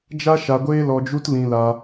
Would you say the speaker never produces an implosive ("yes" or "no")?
yes